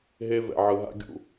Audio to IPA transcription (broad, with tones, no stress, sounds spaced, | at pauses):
ɦ e˦ v ɛ̰˨ ʕ ɯ˨ ɦ a̰˦ ɡʲ ṵ˨